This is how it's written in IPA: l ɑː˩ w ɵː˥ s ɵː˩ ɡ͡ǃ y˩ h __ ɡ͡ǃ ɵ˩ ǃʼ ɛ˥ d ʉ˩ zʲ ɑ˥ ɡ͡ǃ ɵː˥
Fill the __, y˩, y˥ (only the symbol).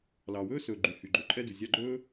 y˩